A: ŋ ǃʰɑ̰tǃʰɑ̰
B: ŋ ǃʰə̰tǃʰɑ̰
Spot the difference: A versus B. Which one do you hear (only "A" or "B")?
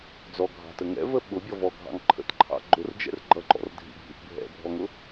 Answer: B